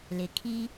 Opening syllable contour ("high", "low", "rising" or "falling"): low